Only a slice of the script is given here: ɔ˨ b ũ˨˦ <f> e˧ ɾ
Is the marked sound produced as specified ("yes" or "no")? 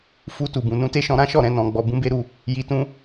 no